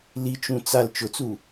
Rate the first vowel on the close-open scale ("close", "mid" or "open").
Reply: close